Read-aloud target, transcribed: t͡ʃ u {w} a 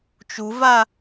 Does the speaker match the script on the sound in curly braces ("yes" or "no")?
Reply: no